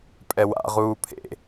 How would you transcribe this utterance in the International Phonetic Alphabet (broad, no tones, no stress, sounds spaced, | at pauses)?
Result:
pʼ ɛ w a̰ ʁ uː pʰ ḛ